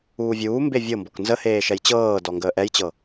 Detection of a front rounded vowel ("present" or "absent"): absent